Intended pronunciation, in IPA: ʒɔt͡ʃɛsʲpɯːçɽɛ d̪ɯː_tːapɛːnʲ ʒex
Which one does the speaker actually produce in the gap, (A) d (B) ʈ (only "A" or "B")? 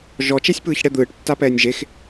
B